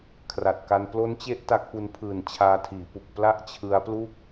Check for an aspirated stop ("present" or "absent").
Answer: present